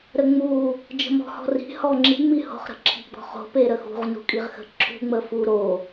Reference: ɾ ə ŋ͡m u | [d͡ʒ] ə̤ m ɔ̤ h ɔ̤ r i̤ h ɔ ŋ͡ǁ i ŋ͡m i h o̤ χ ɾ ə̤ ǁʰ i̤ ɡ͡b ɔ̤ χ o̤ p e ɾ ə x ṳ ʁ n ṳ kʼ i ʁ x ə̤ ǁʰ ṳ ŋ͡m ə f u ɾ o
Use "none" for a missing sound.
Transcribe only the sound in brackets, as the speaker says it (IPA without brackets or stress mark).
d͡ʒ